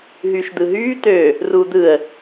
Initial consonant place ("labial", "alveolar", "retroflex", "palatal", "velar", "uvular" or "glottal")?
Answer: glottal